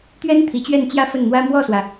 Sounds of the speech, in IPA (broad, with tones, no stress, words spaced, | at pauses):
t̪ɥɛ˥n t̪ʰi˧˥t͡ɕɥɛ˥˧nt͡ɕjä˥˧ fə˥˩nn̪wä˥ mwɔ˥˩swä˩